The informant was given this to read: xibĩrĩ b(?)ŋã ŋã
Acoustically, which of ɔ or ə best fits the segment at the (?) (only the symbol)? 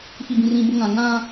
ə